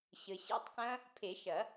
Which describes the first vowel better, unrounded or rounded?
unrounded